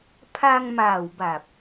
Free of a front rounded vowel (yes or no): yes